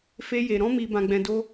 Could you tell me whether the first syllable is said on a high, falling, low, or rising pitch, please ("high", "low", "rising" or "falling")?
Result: high